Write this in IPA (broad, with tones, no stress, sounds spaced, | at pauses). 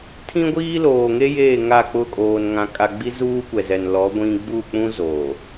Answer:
tʰ ĩ˦ ɡʷ iː˦ l oː˨ ŋ e˦ j eː˦˨ ŋ a˦˨ k͡p ʊ˦˨ kʼ oː˨ n ŋ ã˨ kʼ a˨ ɡ͡b i˦ z uː˦ kʷ ɛ˨ z ɛ˨ n l ɔ˨˦ ɡʷ ĩ˦ ɡ͡b u˦˨ k͡p ũ˦ z o˨